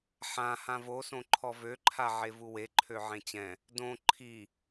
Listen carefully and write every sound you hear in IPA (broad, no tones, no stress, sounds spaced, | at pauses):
ħ ã h ã v o s õ ǃʰ ɔ v ø ǃʰ a ʕ e v u w e ǃʰ ø ʕ ẽ t͡ɕ ɛ̃ | d õ ǃʰ i